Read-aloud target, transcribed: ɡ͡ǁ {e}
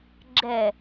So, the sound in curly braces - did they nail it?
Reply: no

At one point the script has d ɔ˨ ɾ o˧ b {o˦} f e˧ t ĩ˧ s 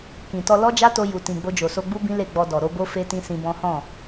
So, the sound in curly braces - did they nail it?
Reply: yes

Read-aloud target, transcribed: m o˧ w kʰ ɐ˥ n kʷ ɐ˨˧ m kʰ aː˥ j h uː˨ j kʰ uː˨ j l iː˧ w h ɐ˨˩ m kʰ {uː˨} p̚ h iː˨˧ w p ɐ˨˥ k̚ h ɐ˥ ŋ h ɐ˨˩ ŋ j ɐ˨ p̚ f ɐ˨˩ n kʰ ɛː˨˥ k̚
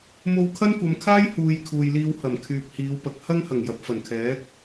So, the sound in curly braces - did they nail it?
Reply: no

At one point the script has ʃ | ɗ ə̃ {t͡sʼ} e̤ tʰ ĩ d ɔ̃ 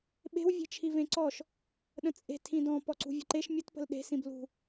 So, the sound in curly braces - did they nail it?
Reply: yes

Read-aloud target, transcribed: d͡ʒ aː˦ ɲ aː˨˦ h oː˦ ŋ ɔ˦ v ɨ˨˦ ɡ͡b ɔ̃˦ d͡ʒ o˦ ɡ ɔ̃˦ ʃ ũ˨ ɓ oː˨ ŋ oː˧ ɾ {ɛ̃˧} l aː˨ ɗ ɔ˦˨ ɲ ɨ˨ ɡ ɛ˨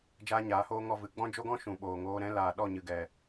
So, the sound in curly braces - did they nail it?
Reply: yes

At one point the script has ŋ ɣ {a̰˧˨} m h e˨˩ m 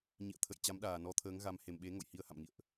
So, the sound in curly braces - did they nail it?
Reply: no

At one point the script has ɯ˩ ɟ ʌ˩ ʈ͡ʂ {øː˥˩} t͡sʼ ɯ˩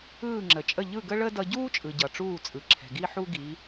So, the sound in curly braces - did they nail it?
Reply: no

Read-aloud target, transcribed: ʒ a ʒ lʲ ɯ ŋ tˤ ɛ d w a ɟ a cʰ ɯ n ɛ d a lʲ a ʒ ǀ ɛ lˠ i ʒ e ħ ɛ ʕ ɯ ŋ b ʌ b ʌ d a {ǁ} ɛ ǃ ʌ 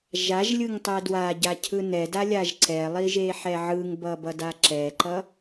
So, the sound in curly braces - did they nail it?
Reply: yes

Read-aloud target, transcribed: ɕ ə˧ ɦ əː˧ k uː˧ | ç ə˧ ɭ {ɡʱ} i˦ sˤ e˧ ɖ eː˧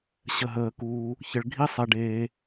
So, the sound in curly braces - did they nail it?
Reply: yes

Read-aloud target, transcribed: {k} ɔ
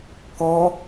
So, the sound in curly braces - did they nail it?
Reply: yes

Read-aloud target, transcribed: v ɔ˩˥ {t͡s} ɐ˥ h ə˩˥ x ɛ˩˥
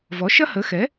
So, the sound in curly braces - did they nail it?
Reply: no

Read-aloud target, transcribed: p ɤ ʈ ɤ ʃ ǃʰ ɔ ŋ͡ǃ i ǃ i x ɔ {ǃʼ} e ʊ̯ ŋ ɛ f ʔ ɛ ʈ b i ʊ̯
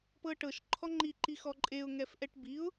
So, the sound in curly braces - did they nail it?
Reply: yes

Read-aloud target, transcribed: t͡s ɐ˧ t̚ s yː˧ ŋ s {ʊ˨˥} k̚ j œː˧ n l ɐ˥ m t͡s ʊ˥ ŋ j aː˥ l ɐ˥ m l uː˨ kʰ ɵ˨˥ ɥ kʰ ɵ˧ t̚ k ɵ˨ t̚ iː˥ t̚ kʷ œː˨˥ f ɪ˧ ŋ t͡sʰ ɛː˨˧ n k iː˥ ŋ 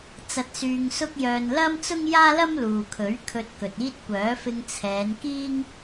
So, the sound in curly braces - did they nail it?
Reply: no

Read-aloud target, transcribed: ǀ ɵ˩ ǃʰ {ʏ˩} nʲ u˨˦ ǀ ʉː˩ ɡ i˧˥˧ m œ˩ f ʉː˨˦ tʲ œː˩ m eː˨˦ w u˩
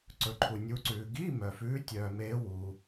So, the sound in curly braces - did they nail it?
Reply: no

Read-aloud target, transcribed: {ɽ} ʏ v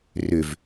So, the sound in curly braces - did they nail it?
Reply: no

